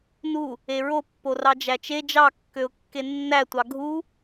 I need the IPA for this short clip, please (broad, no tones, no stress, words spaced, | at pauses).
nu | eɹopːo rɑd͡ʒæt͡ʃe d͡ʒɑkːøʊ̯kːe nːætʷɑ ɡʱu